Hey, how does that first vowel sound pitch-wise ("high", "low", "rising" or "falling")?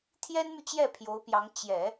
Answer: high